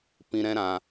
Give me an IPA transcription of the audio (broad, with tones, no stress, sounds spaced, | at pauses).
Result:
p ĩ˧ ɾ ɛ̃˦ ɾ ã˧